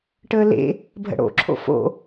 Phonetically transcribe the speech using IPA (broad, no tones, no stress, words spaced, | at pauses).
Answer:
ʈəːlḛ | bʱə̰ɽo̰ ǁʰo̰fo̰